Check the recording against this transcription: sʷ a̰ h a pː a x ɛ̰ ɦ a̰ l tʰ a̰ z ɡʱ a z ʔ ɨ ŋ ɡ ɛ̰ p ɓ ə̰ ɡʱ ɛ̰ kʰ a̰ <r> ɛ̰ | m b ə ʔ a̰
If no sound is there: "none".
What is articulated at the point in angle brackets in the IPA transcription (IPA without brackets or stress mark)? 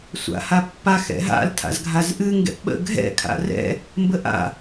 r